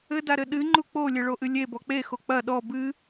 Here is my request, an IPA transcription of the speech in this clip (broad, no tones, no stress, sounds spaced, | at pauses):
ɘ d a ɾ ɘ ɗ ɨ ŋ͡ǃ u k͡p o lʲ ɘ ɭ o ʔ ɨ lʲ e b ɔ k͡p e x o k͡p ɐ ɗ ɔ b ɨ